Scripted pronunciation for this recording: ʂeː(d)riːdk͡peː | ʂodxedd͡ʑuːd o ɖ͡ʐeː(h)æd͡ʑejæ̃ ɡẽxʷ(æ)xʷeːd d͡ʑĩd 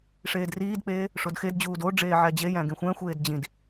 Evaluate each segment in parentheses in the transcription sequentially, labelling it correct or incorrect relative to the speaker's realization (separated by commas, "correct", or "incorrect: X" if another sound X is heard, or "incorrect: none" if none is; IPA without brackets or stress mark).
correct, incorrect: ʕ, incorrect: æ̃